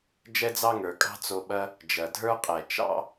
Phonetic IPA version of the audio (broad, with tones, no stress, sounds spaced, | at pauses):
d͡ʒ ɛ˥ d͡z ɑ˥ ŋ ə˞˩ kʼ ɑ̤˥ t͡s o˨ ɓ ɐ˦ | d͡ʒ ɐ˩ dʱ ə˞˥ qʼ ɛ˩ t͡ʃ ɑ̰˥